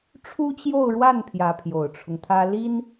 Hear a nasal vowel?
no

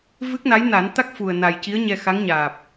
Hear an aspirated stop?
no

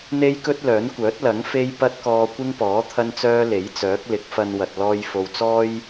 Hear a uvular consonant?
no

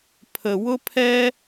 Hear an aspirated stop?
yes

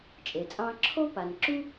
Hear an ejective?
yes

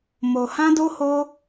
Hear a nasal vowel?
yes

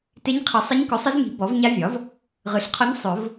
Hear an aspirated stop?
yes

